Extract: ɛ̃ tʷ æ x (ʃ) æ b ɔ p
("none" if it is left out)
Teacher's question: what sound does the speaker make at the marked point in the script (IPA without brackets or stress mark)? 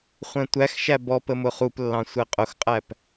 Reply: ʃ